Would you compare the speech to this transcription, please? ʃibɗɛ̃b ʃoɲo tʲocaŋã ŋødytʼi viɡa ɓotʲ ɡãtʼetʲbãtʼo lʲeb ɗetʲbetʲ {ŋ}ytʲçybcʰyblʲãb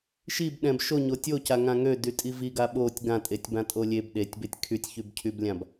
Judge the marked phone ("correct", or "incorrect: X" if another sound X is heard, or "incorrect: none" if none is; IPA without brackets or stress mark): incorrect: kʰ